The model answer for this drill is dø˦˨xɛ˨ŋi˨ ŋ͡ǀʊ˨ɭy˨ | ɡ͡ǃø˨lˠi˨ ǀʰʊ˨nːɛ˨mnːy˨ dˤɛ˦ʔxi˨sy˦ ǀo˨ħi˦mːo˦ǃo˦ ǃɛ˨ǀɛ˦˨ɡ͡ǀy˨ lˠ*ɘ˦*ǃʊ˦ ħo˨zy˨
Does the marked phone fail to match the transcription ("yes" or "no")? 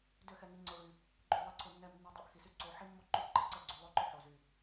yes